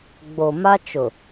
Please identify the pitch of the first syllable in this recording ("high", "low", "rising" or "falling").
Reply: low